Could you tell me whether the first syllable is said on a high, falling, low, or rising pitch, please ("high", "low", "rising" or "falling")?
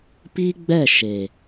high